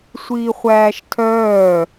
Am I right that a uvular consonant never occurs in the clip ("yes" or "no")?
no